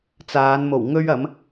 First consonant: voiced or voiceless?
voiceless